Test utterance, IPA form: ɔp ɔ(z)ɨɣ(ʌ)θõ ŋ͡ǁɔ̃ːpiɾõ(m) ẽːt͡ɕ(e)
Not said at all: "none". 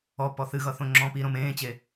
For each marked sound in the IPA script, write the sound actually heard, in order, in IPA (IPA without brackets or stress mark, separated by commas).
θ, ʌ, m, e